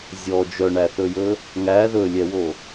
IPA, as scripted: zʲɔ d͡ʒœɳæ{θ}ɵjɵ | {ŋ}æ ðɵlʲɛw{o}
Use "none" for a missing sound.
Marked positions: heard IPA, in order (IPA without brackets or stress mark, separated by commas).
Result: θ, ŋ, o